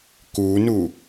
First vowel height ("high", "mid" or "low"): high